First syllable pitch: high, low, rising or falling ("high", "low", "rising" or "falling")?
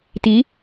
rising